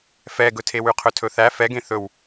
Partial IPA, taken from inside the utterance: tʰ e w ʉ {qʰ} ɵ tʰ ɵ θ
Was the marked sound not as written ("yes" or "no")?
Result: no